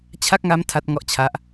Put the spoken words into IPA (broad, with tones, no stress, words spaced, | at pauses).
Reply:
t͡ɕʰa˥˩k̚ŋa˦˥m tʰa˦˥t̚ŋɔ˦˥ʔt͡ɕʰa˦˥ʔ